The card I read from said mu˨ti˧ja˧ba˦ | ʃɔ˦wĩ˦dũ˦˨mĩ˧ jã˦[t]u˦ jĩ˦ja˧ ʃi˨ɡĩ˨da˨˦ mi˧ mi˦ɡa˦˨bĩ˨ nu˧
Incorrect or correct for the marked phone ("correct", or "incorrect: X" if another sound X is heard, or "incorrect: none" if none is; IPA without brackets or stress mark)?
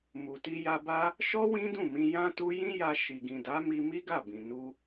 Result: correct